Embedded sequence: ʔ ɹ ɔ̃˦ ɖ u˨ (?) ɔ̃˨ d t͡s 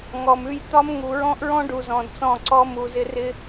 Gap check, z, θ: z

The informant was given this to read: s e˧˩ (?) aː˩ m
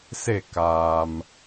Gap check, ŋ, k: k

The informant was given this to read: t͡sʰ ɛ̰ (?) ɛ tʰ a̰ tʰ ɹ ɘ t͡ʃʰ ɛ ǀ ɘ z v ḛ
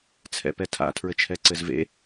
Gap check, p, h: p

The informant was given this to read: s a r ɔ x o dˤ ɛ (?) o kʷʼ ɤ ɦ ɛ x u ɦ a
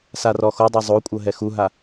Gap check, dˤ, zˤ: zˤ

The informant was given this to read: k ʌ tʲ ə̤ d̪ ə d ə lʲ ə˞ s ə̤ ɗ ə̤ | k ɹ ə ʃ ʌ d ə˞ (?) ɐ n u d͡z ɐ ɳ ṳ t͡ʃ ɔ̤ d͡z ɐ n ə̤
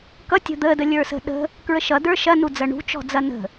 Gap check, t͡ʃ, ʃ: ʃ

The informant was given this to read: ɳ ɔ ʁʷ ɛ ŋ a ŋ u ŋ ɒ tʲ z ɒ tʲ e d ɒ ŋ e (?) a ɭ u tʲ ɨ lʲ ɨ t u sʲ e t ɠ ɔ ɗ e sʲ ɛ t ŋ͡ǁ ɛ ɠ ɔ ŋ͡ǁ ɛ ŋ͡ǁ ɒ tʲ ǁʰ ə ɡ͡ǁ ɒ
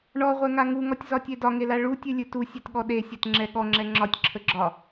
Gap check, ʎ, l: l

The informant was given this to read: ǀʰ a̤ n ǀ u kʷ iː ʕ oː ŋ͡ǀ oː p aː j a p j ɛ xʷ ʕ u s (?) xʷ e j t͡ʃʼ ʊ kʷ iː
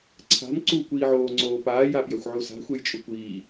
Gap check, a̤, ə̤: a̤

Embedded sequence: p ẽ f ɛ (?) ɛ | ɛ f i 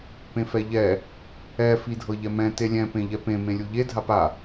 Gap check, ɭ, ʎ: ʎ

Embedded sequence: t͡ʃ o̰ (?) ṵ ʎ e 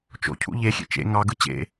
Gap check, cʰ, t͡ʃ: cʰ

